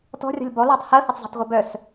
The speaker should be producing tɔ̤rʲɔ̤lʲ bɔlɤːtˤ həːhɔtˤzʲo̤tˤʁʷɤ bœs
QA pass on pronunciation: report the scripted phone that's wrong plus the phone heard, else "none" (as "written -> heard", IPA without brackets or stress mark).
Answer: none